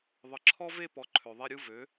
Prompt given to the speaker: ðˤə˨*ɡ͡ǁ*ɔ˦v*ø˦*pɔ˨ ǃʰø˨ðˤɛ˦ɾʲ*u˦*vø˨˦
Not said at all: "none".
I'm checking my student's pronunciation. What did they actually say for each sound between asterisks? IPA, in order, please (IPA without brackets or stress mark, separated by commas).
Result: ǁʰ, e˦, u˦